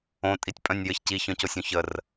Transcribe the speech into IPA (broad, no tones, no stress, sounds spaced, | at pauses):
õ tʼ i tʲ pʼ œ̃ nʲ j ɘ ç c i ç œ̃ c o sʲ õ ç ə r